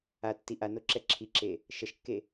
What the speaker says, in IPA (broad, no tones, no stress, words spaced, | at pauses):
atːi ʔanoǁɛ ǁʰiǁe | ʃʌʃkːe